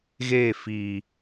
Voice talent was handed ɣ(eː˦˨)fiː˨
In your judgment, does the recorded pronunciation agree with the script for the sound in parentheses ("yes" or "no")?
yes